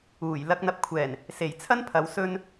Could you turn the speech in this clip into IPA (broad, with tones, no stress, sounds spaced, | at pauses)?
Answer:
uː˨˩ j l ɐ˨ k̚ n̪ ɐ˨ p̚ kʷʰ ɛː˨˩ n | s e˨˩ j t͡sʰ ɐ˥ n pʰ ɐ˨˧ w s ɵ˧ n